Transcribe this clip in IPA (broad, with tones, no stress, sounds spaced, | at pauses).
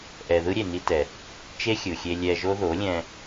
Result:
ʔ ɛ˧ ð ɯ˦ ɾʲ e˨ n i˧ t ɛ˨ | t͡ʃ e˦ xʲ ɯ˨ xʲ e˧ lʲ ɛ˧ ʒ o˦ ð o˨˦ lʲ ɛ̃˧